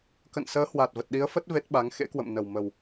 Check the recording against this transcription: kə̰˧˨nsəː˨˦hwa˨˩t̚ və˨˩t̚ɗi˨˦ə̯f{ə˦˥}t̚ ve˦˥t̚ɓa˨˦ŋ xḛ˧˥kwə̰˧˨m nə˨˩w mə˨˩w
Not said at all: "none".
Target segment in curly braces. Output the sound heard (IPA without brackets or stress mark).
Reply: ə˦˥